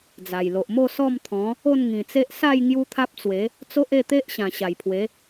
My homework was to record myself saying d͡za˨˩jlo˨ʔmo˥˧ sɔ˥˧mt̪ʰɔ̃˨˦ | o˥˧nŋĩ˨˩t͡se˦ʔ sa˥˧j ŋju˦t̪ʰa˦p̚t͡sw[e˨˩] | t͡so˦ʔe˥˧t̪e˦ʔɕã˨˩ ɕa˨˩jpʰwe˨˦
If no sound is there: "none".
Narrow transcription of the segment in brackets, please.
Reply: e˨˦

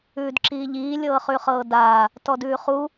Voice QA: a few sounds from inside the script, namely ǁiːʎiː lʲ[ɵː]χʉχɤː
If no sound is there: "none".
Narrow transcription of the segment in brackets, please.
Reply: ɤː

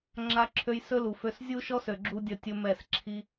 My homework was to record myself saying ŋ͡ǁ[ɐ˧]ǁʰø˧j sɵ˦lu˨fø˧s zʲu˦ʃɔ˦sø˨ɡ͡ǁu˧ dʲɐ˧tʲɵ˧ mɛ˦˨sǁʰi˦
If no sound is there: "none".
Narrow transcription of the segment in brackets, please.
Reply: a˧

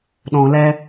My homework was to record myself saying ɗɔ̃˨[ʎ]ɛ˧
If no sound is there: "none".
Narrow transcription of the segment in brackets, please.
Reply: l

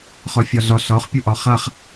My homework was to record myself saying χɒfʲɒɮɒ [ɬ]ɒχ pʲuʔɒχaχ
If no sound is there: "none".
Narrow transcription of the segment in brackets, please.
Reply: ɬ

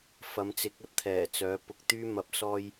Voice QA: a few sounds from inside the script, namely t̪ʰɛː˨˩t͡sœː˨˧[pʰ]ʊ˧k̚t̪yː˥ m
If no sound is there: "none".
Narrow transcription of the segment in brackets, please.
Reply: p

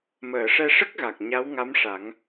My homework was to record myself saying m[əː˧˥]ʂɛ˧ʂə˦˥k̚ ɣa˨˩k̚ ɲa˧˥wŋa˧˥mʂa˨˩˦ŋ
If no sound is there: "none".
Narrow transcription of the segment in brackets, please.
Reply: əː˨˩˨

